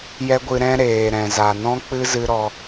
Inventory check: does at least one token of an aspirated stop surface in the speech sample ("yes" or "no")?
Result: no